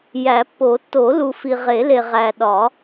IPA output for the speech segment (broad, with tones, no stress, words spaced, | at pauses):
jæ˨˩˦pːo˨˩˦ tːo˨˩˦lu˨fi˨ ʁe˨˩˦le˨ ʁæ˨ɗɒ˨˩˦